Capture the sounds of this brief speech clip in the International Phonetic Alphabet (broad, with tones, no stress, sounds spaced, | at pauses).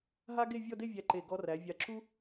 ɦ a˥ ɡ e˥˧ vʲ ɔ˥˧ d e˥˧ vʲ æ˧˩ ǃ e˧˩ ɡ ɔ˧ r æ˩˧ vʲ a˧ ǁ u˥